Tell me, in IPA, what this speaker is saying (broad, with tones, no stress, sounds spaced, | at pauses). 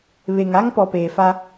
β e˨ ŋ a˦ ŋ p ɔ˨ p eː˨ f a˦